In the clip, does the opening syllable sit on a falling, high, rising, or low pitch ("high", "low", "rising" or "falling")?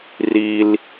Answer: high